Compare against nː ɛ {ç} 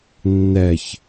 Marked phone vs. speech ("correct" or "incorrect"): correct